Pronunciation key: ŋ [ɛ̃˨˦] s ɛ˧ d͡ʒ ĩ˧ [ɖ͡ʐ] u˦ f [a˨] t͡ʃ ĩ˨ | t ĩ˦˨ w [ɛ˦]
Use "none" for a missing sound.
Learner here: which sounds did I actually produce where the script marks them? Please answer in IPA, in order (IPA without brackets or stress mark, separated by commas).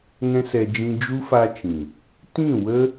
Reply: ɛ̃˦, d͡ʒ, a˧, ə˦